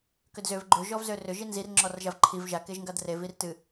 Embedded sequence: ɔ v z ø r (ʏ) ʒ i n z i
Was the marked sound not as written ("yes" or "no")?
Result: no